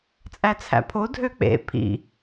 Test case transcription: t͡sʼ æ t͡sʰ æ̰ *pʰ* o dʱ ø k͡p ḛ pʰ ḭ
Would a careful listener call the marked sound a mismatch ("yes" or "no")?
no